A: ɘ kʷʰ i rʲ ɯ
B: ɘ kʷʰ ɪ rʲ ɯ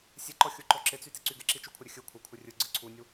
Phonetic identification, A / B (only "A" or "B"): B